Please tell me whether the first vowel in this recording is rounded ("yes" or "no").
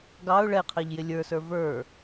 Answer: no